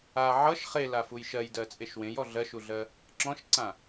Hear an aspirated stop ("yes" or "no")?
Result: no